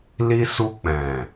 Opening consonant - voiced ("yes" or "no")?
yes